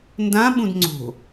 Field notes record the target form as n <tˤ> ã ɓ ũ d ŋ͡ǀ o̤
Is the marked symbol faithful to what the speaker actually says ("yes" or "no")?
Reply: no